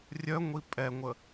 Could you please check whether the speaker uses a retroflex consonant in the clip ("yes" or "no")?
no